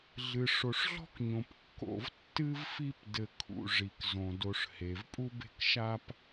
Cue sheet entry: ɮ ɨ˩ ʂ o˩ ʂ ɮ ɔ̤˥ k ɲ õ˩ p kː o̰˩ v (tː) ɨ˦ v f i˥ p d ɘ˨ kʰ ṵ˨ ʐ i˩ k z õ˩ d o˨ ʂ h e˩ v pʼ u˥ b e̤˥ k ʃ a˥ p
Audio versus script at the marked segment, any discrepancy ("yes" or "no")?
no